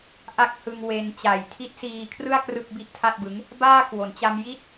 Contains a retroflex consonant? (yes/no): no